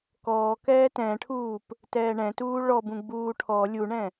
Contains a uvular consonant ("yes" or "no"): no